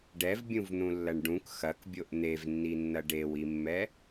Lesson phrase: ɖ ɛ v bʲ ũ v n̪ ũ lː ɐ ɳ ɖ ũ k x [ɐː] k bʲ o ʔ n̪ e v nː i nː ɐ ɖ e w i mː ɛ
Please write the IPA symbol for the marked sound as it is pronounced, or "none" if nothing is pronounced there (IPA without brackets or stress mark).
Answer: ɐ